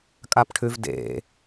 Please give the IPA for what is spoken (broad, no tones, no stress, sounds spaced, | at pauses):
kʼ a p ʈʰ ʉ v d ḛ